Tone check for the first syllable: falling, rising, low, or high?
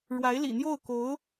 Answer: rising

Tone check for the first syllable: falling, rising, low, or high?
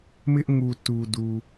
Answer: high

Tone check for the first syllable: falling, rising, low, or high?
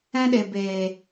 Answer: high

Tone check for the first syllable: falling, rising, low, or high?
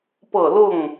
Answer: falling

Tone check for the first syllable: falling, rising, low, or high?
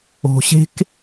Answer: low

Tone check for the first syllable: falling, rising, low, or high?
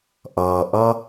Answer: low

